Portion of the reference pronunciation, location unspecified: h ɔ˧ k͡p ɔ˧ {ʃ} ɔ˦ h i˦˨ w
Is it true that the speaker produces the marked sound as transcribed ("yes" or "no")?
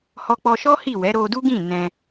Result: yes